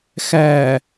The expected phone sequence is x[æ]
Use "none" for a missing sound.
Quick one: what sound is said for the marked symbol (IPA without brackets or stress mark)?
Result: æ